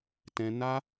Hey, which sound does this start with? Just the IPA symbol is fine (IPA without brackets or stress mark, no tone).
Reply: t